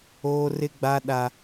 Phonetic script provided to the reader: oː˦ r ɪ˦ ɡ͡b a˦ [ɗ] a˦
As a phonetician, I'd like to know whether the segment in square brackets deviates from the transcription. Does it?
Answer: no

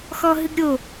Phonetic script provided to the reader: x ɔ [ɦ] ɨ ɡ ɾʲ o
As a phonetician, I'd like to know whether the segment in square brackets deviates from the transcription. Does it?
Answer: no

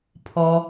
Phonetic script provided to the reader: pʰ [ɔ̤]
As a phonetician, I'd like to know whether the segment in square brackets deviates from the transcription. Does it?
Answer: yes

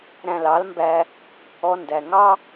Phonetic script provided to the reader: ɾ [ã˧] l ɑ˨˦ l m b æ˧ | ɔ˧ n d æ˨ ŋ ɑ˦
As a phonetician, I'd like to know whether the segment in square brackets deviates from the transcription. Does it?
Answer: yes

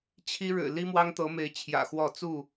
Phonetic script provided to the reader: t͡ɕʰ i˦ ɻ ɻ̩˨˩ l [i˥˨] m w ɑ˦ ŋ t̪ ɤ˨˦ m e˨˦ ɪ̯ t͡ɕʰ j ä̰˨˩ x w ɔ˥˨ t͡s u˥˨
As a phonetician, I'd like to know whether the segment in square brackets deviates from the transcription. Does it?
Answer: yes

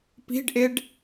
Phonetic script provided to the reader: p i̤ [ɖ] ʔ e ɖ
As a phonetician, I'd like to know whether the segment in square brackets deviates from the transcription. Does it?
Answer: no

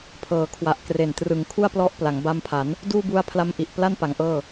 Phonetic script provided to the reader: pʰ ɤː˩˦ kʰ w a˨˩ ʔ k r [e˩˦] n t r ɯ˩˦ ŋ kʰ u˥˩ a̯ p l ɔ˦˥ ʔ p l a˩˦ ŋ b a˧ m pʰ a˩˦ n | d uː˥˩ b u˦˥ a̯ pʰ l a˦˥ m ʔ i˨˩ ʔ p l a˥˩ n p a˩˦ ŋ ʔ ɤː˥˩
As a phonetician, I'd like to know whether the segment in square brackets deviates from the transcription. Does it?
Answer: yes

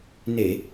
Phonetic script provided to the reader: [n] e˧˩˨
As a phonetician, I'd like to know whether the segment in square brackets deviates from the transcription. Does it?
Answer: no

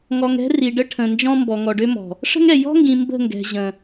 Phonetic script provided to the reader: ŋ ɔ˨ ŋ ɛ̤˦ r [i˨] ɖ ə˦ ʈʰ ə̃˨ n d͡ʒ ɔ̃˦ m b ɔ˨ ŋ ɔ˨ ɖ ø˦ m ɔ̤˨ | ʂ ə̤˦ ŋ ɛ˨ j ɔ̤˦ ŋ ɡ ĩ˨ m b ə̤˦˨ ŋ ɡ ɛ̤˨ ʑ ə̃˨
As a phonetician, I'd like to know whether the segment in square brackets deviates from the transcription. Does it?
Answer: no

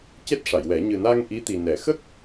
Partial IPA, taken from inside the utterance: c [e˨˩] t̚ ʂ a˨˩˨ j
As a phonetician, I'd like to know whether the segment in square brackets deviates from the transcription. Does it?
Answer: yes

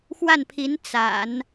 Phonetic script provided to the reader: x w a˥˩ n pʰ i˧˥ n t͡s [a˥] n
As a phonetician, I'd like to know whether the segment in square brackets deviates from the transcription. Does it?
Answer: yes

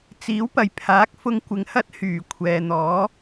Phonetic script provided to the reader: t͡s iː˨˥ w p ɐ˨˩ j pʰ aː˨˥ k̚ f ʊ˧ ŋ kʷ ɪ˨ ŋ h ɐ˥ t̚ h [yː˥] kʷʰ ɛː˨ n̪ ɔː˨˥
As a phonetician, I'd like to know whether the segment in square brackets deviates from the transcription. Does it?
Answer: yes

